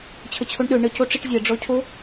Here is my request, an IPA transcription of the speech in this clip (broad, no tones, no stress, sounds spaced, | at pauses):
t͡ɕʰ ə t͡ɕʰ o ɳ ɗ ø ɳ ə c o ʈ͡ʂ i ʈ zʲ ɛ ɖ͡ʐ ɔ cʰ o